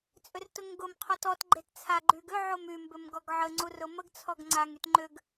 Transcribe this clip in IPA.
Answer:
t͡sʼʏrtʊŋɡʊm qʰɔtɔt ɡ͡ǃett͡sʰa ɡ͡ǃyɡʏ ʕomy mbʏmɡɔɡʕə ŋ͡ǀurʊməɡ t͡sʰɔɡŋ͡ǀaŋ ytŋ͡ǃʏɡ

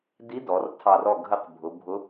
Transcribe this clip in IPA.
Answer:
di˧˥dɔ˩˧r tʰɑ˧˩rɔ˥˨ ɡʱə˥˨qbʱʊ˩˧ bʱʊ˧˥

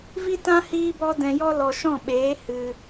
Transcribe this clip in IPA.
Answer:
vi˦tã˦ hiː˦bɔ˦ dɛ̃˧jɔ˦ lɔ˧ ʃɔ̃˦˨ɓeː˨˦ hɨ˧

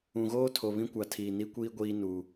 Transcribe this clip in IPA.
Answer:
ũ˨ɣoː˦tʰo˨ βĩ˦kʷa˨ tʰiː˨ni˦kʷiː˦ ɡʷiː˦nu˨

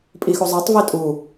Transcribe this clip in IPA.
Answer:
pʼixuzˤɛtˤ vitʼu

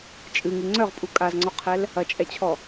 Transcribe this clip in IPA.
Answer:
t͡ʃʼɨŋɨ ŋ͡ǀœʁpʼu kʼazŋ͡ǀɔqʰɛl | ɐt͡ʃʼɛt͡ɕʰɔ

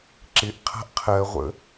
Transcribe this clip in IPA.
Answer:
ǁɪʔqʰa̤ʔ qʰɜʁʷə̰

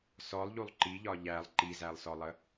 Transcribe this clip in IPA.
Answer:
sɔlˠʎulˠ ǃiʎɒ ʎælˠ ǃizælˠsɔlˠə

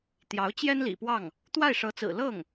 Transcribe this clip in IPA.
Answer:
t̪jɑ˧˥ʊ̯t͡ɕjɛ˥nlḭ˨˩pwɑ˥˩ŋ | t̪wa˥˩ɪ̯ʂɤ˧˥t͡sɹ̩˨˩ lɤ˥˩ŋ

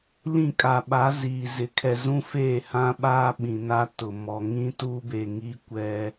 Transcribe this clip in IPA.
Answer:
lĩ˦˨kʼa˨ɓa˨˦ ziː˨zɪ˨kʰɛ˨ zũ˦feː˦˨hã˦ɓaː˦ ɓĩ˨na˦tʊ˨ mɔ˨ ŋĩ˦tu˦be˨ŋi˦ kʷɛ˦

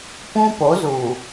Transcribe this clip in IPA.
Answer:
pũ˦po˨˦zuː˨

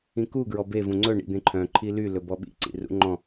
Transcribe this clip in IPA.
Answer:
ĩku ɡɹɔbe vũŋ͡ǀɵ ɳḭd̪ẽǃʰœ̃ ǃʰily lɵbɔɓḭ ǀḭrṵŋ͡ǃɔ̃

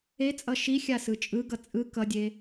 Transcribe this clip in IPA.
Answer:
et͡sʼʌ ʃixʲasɯ t͡ʃʼɯɡʌ t͡sʼɯ kʌdʲe

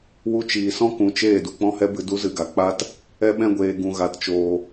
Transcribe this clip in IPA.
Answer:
wu˧t͡ʃiː˨sɔ̃˦kũ˨ t͡ʃeː˦˨ du˨k͡pɔ̃˦hɛ˦bɨ˧ du˦zɨ˧ɡa˨ k͡pa˧t | ɛ˦ɓɛ̃˦ɡʷeː˧ ɡũ˧ ɣa˧tt͡ʃoː˧

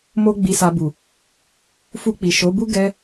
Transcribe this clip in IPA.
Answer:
mo˦ɡ͡bi˧sa˧bu˨ | fu˧k͡pi˨ʃo˨˦bu˦ ɡɛ˦

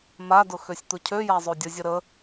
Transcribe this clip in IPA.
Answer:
madʊ xøsʲt̪ʊcʰøja zˤodʲəzʲə ɾə

